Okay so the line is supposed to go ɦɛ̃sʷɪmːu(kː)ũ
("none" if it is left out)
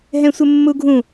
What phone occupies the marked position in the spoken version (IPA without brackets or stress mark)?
ɡʱ